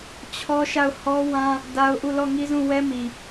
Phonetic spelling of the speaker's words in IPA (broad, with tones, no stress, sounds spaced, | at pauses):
t͡ɕʰ ɔ˦ ʃ a˦˨ ʊ̯ h ɔ˦ w ã˦ | d a˦ ʊ̯ ʔ u˦˨ l ɔ˦˨ ŋ i˦ z ũ˦˨ w ɛ˦ m i˨